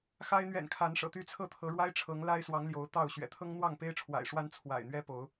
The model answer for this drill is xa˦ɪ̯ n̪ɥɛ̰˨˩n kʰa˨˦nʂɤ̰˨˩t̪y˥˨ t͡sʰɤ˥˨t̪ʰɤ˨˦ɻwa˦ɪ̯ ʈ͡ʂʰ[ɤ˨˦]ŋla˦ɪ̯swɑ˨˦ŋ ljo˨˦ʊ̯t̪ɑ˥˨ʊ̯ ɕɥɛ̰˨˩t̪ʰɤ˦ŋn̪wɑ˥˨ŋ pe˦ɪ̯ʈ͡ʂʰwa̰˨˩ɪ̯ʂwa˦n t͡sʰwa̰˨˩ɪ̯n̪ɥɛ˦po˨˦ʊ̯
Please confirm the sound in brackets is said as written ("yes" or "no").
yes